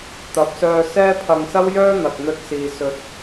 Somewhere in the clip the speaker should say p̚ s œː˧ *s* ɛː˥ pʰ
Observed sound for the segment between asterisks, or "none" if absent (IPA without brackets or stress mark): s